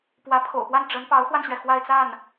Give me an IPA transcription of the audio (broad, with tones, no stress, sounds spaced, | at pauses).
p w ä˧˥ pʰ o̰˨˩ ʊ̯ p w a˥˩ n ʈ͡ʂ ə˧˥ n p ɑ˧˥ ʊ̯ x w a˧ n ɕ ɥ ɛ˩ x w a˥˧ ɪ̯ t͡s a˥˩ n